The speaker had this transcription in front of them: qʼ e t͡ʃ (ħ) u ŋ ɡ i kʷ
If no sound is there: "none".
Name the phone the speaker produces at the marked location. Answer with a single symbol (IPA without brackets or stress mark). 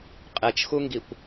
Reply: x